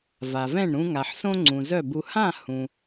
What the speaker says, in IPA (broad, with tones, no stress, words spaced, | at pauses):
va˩vɛ̃˥˩ɳɾũ˧ ŋa˩ħ sõ˥ŋ͡ǀũ˩zœ˥˩bu˧ hã˥˩ hũ˩